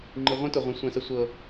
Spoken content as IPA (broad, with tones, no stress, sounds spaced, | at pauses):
ŋ͡ǃ i˨ ʁʷ ĩ˦ t ʊ˨ ʁʷ ə̃˨˦ sʷ ɛ̃˨ s ə˨ sʷ ɤ˨